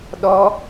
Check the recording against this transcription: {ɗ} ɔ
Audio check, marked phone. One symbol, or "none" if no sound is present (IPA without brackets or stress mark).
ɗ